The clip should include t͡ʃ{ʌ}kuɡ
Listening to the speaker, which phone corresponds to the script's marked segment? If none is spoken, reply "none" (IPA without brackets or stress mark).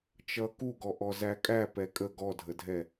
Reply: ʌ